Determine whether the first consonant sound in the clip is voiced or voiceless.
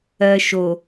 voiceless